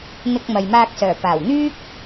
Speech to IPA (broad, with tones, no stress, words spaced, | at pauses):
n̪ɪ˧k̚mɐ˨jmaː˧k̚sœː˨˩ paː˨˩wn̪yː˥k̚